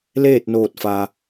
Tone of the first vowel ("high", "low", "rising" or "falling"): falling